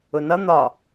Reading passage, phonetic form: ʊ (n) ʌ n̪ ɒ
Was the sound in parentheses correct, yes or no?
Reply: yes